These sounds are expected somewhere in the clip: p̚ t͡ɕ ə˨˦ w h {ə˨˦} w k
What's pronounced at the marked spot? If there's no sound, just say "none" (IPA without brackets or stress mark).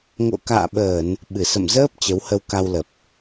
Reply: ə˧